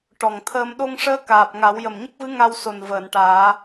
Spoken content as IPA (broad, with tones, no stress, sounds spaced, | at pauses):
ʈ ɔ˨˩ ŋ t̪ʰ əː˧ m ɗ o˧ ŋ ʂ əː˧˥ k aː˨˩ p̚ ŋ a˨˩˦ w j ə˨˩ m ɲ ə˦˥ k̚ v ɨ˧˥ ŋ a˧ w s o˨˩ n v əː˨˩˨ n ʈ aː˨˩˦